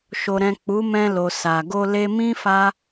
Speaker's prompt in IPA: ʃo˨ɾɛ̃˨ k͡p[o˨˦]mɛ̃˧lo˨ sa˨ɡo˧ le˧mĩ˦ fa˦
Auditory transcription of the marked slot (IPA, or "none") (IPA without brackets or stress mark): u˨˦